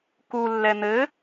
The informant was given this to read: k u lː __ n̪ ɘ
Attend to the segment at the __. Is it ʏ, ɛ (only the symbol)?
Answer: ɛ